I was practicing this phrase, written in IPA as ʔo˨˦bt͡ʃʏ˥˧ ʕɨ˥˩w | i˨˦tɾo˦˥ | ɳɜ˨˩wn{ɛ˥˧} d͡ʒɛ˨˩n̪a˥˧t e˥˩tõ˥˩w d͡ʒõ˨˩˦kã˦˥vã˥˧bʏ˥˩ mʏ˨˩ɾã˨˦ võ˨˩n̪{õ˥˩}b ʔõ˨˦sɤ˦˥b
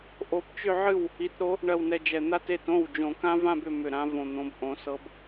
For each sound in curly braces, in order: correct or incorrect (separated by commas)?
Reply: incorrect, incorrect